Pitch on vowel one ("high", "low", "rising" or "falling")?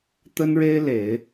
high